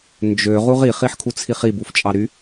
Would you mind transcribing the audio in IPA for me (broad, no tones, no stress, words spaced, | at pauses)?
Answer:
nd͡ʒø ʁuʁi χiħkʰut͡sʰiχi buft͡ʃʼɑɾy